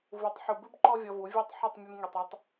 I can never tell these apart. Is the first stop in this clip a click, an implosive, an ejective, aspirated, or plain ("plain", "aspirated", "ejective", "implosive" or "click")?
plain